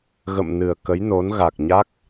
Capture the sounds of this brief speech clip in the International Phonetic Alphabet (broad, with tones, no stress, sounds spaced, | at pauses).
ɣ ə̰˧˨ m n ɨ˨˩ ə̯ k ə˨˦ j n o˨˦ n ɣ a˨˩ k̚ ɲ a˦˥ k̚